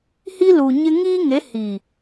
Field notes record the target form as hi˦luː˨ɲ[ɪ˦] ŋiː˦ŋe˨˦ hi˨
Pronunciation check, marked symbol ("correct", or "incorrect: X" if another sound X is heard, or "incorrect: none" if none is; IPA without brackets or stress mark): correct